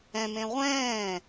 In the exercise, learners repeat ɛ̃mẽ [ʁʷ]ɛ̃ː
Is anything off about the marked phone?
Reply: no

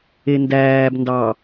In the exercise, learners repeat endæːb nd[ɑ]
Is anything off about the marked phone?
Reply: no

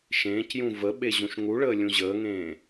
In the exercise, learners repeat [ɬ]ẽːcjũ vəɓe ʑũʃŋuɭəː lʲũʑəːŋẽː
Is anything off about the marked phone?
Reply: yes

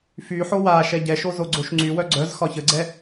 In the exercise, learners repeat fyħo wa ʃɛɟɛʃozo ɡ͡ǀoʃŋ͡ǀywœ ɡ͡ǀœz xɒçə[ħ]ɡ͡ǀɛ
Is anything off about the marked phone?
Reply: yes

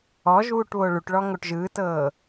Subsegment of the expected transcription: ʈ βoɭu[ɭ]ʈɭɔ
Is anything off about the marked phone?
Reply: yes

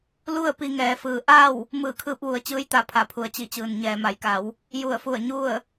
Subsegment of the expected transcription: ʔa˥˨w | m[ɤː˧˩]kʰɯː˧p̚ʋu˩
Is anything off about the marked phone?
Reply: yes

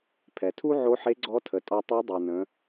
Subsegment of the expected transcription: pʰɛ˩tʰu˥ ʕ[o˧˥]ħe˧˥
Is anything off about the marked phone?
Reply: no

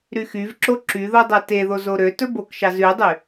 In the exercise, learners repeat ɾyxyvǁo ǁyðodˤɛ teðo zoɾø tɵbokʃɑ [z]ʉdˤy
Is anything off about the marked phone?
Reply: no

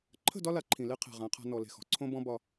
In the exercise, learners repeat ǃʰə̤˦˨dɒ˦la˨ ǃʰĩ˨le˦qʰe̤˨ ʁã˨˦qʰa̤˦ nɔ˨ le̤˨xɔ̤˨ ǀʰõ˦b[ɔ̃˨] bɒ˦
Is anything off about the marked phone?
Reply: yes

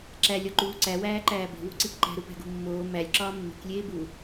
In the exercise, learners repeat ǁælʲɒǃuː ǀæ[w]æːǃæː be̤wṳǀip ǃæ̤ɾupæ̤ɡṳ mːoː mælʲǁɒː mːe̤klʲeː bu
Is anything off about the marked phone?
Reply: no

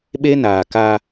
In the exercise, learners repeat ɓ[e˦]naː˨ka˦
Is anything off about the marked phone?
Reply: no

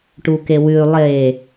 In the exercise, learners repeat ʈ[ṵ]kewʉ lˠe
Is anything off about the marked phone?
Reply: yes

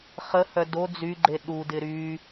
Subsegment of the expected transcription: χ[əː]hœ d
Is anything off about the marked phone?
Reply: yes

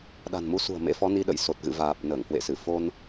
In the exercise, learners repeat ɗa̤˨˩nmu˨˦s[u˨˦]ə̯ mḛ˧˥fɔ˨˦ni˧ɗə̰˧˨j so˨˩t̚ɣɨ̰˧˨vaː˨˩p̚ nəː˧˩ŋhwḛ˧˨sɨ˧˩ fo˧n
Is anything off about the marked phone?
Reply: yes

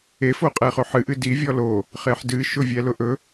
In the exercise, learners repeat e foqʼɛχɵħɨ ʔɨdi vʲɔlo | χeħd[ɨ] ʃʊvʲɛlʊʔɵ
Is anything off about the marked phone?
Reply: no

